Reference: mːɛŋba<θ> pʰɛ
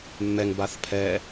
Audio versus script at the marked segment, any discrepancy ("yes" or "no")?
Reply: no